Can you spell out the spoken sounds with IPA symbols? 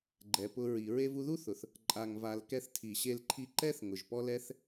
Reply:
ɡ͡ǃɛ˨pʊ˧ ɹi˨ ɹe˧vu˧ðu˦ θʊ˨θ | ǃʼa˨ŋva˨l kɛ˧θtʰi˨ɕe˧lǃʰi˧ ǃɛ˦θ ŋʊ˨ʒpɔ˦l ɛ˦θ

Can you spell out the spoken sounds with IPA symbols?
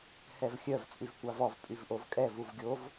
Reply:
hɛvxʲœv t͡sʼyvkʷavɔv pʼyvʔovkʼɛv uvɡʲov

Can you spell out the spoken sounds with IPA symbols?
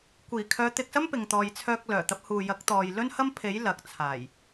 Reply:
kʷiː˨˩ kʰœː˨˧t̪ɪ˨k̚sɐ˥m pɪ˨ŋt̪ɔː˨jt͡sʰœː˧k̚ lœː˨˩t̪ɐ˧p̚huː˨ jɐ˨˥k̚t̪ɔː˨j lɵ˥nhɐ˥mpʰe˨˥j lɐ˨k̚t͡sʰaː˨˩j

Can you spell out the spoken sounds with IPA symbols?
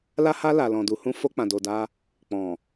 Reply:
la˧ha˧ la˨lɔ̃˨du˨hũ˧ fo˧k͡pã˨do˨da˧ | k͡pɔ̃˨

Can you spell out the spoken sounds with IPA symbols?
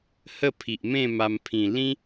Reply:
hə˥˧ pʰi˨ʔmẽ˥˧ ma˧mpʰĩ˨˩ lĩ˦

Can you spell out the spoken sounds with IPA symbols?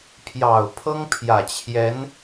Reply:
pʰjɑ˨˩ʊ̯pʰɤ˥ŋpʰjä˨˩t͡ɕʰjɛ˧˥n

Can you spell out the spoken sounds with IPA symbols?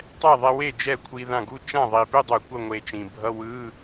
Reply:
tˤɛ˥˩ðˤe˧we˥˩ d͡ʒɛ˥˩kʷʰi˧ðã˥˩ɡu˥˧ t͡ʃã˥˩ðˤi˨˩pe˥˧dˤu˧˩˧ kʷʌ˥˧ŋʷe˧t͡ʃĩ˨˩ bʱʌ˧˥˧wɯː˧˥˧

